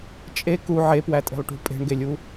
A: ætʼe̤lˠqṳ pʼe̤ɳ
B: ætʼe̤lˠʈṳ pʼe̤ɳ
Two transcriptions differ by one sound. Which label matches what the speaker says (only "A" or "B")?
B